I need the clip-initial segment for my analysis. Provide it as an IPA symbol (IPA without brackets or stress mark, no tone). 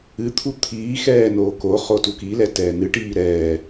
ɨ